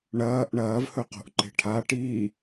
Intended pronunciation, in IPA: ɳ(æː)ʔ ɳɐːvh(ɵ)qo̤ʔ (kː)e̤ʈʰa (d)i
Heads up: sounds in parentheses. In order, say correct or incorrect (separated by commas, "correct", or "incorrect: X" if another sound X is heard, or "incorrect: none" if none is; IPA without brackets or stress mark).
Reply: incorrect: ɐː, correct, incorrect: ǃ, incorrect: ʈ